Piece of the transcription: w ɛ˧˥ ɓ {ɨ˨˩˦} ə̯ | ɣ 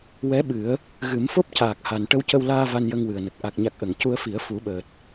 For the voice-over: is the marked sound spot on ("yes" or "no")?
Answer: yes